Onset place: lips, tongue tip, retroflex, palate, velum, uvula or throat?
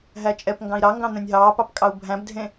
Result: throat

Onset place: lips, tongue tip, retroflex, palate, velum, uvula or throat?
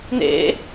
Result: tongue tip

